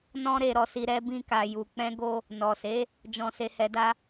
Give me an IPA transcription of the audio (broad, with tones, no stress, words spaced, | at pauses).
nɔ̃˧ ɾe˨ɾɔ˨si˨ ɾɛ˧bĩ˧ka˨ju˨ k͡pɛ̃˧ɡo˧ | nɔ˨se˨˦ | d͡ʒɔ̃˨se˨ hɛ˨da˧